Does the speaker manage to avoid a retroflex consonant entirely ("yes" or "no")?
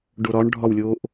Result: no